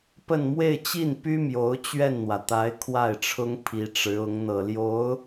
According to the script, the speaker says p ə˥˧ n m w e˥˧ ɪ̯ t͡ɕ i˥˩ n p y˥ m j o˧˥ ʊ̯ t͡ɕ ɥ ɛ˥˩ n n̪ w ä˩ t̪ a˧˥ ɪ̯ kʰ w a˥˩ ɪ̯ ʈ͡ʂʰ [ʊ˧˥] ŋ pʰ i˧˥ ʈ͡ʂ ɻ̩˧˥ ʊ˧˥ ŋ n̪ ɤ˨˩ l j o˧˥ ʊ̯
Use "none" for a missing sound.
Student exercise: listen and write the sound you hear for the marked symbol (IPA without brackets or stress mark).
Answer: ʊ˥